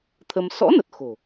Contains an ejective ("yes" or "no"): no